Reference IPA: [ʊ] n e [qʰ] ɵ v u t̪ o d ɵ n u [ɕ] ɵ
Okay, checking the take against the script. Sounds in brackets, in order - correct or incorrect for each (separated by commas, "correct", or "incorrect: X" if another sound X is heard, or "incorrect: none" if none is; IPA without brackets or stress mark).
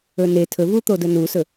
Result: incorrect: ɵ, incorrect: tʰ, incorrect: s